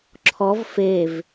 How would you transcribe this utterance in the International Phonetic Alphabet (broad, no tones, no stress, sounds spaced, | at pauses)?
ǁʰ ɔ v f e v